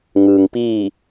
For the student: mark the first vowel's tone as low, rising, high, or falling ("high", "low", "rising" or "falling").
low